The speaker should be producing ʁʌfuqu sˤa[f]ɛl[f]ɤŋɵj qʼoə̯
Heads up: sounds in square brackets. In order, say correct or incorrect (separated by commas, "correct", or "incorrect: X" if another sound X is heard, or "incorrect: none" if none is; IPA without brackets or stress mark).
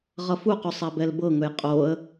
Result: incorrect: b, incorrect: b